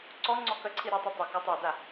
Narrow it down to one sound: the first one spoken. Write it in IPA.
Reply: ǀ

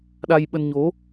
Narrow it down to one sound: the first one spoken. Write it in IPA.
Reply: ɗ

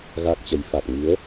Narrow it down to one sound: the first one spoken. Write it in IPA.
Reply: ɣ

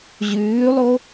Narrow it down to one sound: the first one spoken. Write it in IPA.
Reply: ʑ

